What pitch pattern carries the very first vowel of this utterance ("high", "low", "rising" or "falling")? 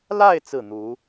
falling